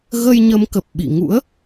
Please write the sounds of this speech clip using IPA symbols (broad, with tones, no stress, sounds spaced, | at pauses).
ɣ ə˧ j ɲ ə˨˦ m k ə˨˩ p̚ ɓ ḭ˧˨ ŋ ṵ˧˥ ə̯